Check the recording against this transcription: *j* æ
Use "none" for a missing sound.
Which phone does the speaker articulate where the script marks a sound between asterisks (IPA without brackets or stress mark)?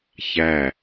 ç